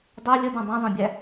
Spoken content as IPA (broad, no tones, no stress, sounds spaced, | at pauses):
dˤ ɛ lʲ ə d ã dˤ ɛ̃ zˤ ẽ bʲ æ